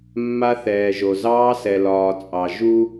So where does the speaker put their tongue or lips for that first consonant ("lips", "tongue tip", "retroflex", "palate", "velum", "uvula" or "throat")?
lips